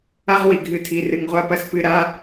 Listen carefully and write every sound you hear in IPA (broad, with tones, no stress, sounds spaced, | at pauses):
a˦ ʁ w i˩ ɡʱ ɨ˨ tʰ i˩ r ɨ˩ ŋ ʁʷ a˦ p ɐ˦ s p ɨ˨ ɾ a˦